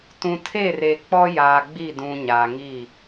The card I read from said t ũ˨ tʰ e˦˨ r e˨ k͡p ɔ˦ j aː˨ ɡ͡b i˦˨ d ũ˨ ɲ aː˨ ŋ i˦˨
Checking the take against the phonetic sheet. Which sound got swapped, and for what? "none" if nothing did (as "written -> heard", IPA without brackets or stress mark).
none